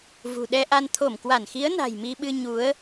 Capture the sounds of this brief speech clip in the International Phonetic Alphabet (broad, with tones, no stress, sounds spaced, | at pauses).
v ṳ˨˩ ɗ ɛ˧ ʔ a˧ n t̪ʰ o˧˩ m k w a˧˩ n x i˨˦ ə̯ n a̤˨˩ j m i˧ ɓ ɨ˧ ɲ u˨˦ ə̯